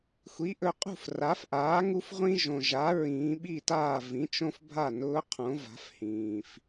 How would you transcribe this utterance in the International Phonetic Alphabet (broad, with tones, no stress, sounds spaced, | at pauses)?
xʷ i˩˥ ʔ ɵ˩˧ qʼ ṳ˥˩ f r a˩˥ f ʔ aː˩˥ ŋ u˦ f ʁʷ ĩ˦ ʒ õ˩ ʒ a˩˥ ɹ ĩː˩˧ ɓ i˥˩ t aː˥˩ v ĩ˩˥ t͡ʃ õ˦ f bʱ a˥˩ n ʊː˦ qʰ õ˩˥ v a̤˩˥ f h ĩː˩ f